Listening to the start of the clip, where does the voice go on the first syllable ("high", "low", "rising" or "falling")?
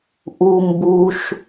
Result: low